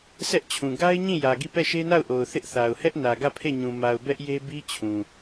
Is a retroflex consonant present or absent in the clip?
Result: absent